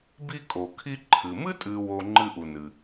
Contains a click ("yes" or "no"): yes